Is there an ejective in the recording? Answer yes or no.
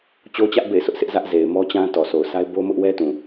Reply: no